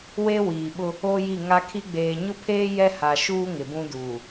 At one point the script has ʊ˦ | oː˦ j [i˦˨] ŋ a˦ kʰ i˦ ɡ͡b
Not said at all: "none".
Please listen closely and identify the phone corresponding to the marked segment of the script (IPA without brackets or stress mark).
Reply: i˦˨